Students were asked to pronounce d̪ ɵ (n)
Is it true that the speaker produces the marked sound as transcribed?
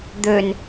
yes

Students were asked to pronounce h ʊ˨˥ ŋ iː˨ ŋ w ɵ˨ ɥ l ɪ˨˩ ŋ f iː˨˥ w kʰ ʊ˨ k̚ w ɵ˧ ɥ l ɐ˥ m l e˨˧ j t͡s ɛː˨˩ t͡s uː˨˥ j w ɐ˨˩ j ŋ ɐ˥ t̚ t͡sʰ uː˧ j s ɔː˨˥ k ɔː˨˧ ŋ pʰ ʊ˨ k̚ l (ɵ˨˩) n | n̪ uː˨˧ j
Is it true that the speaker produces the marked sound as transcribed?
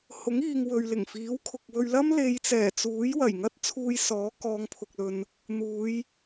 no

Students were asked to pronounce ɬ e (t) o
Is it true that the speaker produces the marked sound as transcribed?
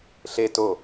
yes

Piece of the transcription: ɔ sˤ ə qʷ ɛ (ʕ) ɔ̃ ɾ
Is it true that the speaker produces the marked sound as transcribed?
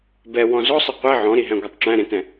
yes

